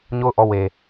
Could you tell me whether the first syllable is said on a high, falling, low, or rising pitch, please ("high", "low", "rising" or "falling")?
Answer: falling